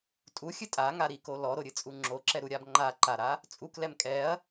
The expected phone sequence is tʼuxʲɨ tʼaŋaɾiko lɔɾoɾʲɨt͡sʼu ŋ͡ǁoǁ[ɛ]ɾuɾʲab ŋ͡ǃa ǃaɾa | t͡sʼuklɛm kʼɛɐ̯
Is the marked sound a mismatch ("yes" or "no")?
no